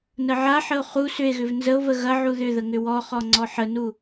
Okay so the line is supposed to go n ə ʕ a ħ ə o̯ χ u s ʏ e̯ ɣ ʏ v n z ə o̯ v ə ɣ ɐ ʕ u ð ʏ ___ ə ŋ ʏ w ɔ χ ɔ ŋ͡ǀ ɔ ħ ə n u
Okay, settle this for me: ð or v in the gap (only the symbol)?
ð